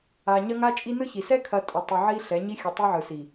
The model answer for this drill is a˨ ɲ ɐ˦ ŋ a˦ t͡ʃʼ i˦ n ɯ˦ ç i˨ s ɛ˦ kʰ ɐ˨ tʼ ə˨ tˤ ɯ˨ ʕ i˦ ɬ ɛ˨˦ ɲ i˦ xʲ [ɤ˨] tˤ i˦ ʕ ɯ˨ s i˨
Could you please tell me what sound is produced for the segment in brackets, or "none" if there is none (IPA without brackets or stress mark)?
ɯ˨